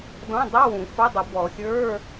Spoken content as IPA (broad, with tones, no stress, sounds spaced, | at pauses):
d ɔ̃˧˥˧ dˤ ɵ˧˥˧ w ũ˨˩˦ f ɐ˧˥˧ dˤ i˨˩˦ b ɔ˨˩˦ xʲ ə˞˧˥˧